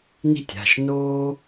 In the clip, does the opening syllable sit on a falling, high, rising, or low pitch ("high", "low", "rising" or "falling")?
high